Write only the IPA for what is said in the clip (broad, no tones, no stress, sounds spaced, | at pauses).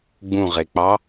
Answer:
ɡ͡b ũ ʁ e k͡p ɑ